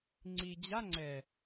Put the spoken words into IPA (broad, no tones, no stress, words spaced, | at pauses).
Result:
ŋ͡ǀi d͡ʑa ŋ͡ǀɛ